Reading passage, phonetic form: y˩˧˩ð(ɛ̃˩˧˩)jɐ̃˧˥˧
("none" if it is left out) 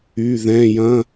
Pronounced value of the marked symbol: ɛ̃˩˧˩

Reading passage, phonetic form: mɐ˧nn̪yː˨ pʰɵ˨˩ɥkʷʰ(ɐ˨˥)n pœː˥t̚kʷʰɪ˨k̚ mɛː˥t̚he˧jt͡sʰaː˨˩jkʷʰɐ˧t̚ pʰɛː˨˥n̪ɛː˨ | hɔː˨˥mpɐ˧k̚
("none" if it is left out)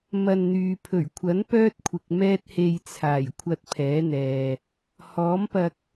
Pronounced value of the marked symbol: ɐ˨˥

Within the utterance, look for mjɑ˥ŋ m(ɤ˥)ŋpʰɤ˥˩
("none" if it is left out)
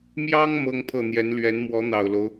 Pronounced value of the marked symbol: ɤ˥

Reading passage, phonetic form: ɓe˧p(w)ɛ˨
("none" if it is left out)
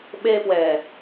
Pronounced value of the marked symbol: w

